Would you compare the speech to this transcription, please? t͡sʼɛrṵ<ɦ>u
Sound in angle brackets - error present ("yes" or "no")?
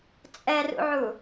yes